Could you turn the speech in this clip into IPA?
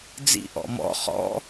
d͡zḭ ʔɔ̰mɔ̰ χɔ̰

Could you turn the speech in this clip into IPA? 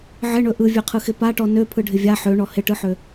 ʕɪɳɵ ʔɯvʲøqʰɯxɪ paʈɔ nøpʰɯɖʱɪ vʲa ħøɳɔ hɪʈɯħø

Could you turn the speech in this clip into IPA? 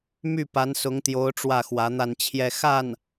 my˥˩pa˧˥nsʊ˧˥ŋt̪jo˧˥ʊ̯ ʈ͡ʂwä˥˩xwä˧˥n̪a˥˧nt͡ɕʰjɛ˥˧ xa˥˩n

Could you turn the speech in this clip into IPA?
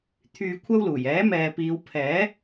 t̪ʰyː˧kʷʰɐ˥wluː˨˩j ɛː˨˥mɛː˨ piː˨˧wpʰɛː˨˥

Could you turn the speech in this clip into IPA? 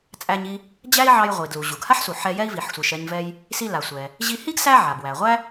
t͡sʼæ˧ɲi˧ | d͡ʑæ˥i̯ʕɑ˧j ʁʷi˩dlu˩ ʑu˩ɡha˥ħsu˩ ħɛ˧jɛ˥i̯vi˩ħsʷi˩ʃ ɛ˧ɲ vɛ˧j | si˧la˩sʷɛ˩ | ʑi˧hi˥ɡ sæ˥ʕa˩ bwæ˩ʁʷæ˥

